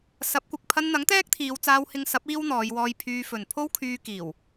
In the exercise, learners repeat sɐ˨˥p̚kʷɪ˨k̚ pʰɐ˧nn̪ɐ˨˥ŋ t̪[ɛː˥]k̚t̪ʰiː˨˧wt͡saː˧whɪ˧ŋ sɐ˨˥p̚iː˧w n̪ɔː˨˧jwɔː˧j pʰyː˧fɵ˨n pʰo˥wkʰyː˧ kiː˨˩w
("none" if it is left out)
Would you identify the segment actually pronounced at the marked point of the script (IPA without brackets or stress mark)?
ɛː˥